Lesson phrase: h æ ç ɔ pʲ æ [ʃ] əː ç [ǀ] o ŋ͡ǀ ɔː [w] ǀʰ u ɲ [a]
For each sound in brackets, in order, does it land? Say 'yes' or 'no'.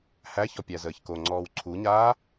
no, no, yes, no

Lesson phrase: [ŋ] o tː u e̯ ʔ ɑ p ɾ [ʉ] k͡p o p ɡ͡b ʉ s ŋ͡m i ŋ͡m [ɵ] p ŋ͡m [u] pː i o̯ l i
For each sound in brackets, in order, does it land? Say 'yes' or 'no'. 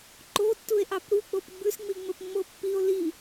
no, no, yes, no

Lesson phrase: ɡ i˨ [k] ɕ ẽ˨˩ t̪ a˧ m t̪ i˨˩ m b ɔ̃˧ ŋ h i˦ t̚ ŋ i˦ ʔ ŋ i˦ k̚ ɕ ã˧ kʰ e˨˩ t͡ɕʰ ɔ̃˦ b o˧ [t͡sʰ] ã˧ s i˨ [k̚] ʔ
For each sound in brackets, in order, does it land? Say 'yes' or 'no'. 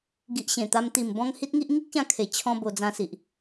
no, no, no

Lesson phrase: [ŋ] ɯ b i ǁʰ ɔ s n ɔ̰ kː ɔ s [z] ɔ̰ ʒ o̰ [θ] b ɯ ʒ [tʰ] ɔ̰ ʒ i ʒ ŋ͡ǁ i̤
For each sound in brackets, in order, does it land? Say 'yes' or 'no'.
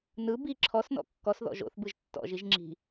no, no, yes, no

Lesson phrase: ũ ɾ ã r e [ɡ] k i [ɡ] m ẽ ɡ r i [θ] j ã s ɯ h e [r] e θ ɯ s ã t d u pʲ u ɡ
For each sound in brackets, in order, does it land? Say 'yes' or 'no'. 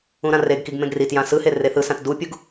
yes, yes, no, yes

